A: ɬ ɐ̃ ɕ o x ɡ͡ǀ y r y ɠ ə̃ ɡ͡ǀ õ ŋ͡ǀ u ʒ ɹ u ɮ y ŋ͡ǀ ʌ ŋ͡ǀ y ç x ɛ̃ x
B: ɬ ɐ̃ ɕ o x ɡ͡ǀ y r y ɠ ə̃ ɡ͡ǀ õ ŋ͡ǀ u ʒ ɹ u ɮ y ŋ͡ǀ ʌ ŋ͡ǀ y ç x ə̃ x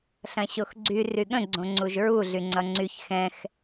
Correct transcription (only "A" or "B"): A